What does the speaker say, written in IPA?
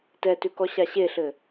t ɛ t ʉ k ɔ ɕ a ɕ e ɬ ɘ

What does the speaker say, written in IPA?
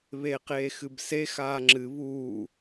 β eː q eː x ɨ b s e x aː ŋ͡ǁ ɨ β uː

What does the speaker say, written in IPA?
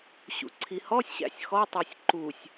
ɕ ṵ ǀʰ i h ɔ sʲ ɕ æ̰ sʲ x ɔ tˤ a sʲ ǃ u sʲ

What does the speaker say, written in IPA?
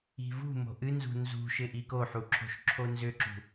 i̤ v ṳ m o̤ ʔ ɨ n z ṳ n z ṳ ʃ ɪ ʔ i k o ħ u ǁʰ o̤ ʃ ǁʰ o n z ʏ ǁ ṳ

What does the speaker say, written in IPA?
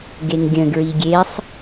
ɡ e ŋ ɡʲ ə̃ ɡ ɹ i ɡʲ e sˤ

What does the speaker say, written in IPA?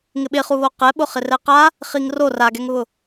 ŋ ɪ ɓ ɪ χ u β o q ɛ ɓ ʊ χ ɪ r ɛ q a | χ i ŋ r o r a ɡ ɛ ŋ β ʊ

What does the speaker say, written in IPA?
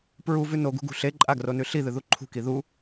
p ɹ u v ʉ n o ɡ ṳ ɡ ṳ ɬ e ǃʼ a ɡ r o n ʉ ɬ i ð ɨ ð u ǃʰ ṳ k i ð u

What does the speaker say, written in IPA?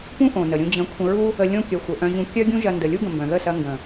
p ũ˦ ʔ õ˨ n ə˨ ɾʲ ũ˧ d͡ʑ ə̃˨˦ kʷʰ ə̃˧ ɹ u˦ | ə˧ lʲ õ˦ kʲ œ˨ xʷ ə˨ ʔ œ̃˧ ʑ ũ˧ kʲ œ˦ ɡʲ ũ˦ ʒ ɐ˦ n d ə˧ lʲ u˦ ɡ ə̃˨ m b œ̃˨ ð ə˦˨ s ɐ˧ ŋ ɡ ə̃˨

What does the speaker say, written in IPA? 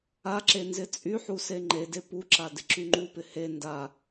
a ǁ e n z ɪ t͡sʼ y ħ u s e ŋ͡ǃ e d e p u ǁ a d ɪ ǁ y ŋ͡ǃ u p ɪ h e n d a

